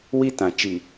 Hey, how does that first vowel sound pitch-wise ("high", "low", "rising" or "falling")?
high